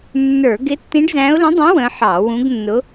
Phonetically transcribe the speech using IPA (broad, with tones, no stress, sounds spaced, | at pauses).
nː ə˞˧˩˧ ɡ ɪ˧˥ tː ĩ˧˥ ɖ z æ̃˧˥ ʊ̯ l ə̃˧˥ dˤ ĩ˧˥ w ə̃˧˥ ħ ɑ˧˩˧ w ũ˧˥ ɡ nː ʊ˧˥